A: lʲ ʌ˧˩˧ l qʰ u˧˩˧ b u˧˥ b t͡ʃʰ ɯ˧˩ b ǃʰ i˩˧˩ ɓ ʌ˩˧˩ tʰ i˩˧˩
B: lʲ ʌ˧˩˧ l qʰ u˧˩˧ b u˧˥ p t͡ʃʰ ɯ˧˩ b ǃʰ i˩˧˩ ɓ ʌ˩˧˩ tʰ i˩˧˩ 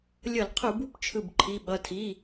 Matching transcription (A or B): B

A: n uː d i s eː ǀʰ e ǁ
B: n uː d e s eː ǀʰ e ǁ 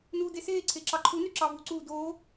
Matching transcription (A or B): B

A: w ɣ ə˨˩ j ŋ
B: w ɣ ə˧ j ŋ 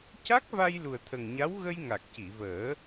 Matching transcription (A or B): B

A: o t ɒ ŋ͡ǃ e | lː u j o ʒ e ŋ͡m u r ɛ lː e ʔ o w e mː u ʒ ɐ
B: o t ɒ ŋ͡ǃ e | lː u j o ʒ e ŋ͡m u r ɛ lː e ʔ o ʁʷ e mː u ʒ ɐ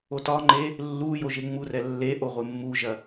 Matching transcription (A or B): B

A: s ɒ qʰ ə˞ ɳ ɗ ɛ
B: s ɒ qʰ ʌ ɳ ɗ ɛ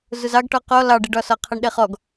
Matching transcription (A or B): B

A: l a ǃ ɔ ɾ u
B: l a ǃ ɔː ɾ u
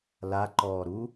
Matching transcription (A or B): B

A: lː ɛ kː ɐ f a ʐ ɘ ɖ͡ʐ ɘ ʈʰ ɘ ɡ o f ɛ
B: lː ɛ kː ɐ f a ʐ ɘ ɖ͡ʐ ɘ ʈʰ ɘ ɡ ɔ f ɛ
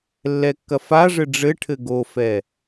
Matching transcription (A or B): A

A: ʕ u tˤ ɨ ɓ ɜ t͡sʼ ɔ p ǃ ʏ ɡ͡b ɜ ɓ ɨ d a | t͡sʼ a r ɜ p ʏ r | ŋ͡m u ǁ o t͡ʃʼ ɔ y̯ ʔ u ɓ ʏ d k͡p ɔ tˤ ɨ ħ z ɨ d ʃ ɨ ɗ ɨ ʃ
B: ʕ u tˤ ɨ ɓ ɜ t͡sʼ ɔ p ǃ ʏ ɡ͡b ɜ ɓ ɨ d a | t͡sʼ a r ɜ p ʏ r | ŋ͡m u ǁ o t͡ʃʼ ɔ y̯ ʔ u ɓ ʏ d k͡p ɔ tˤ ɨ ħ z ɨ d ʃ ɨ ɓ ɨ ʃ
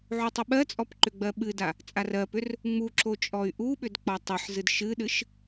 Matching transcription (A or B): A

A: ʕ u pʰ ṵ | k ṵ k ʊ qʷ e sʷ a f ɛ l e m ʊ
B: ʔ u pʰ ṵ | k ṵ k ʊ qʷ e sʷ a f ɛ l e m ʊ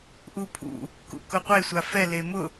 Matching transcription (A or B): B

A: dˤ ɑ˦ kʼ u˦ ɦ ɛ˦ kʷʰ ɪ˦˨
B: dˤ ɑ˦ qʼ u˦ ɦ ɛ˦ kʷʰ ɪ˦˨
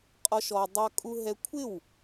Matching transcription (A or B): A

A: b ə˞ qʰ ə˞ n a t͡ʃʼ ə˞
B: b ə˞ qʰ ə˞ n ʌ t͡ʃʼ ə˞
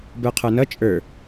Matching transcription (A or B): B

